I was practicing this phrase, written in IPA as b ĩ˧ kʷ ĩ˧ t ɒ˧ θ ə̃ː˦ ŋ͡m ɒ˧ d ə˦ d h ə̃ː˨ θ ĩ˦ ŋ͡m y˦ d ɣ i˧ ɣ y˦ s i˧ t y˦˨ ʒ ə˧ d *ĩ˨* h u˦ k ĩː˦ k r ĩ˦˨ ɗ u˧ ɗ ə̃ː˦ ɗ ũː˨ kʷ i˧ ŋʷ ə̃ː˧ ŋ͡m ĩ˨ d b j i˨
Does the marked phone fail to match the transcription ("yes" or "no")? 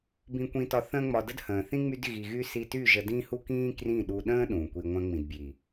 yes